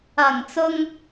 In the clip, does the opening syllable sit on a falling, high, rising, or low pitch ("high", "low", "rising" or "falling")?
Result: low